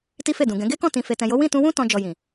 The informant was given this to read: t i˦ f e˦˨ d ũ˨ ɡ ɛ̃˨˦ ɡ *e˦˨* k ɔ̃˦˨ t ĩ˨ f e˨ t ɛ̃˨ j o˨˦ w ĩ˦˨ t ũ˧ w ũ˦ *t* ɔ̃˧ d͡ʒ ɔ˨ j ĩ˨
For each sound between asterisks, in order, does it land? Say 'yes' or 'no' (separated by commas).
no, yes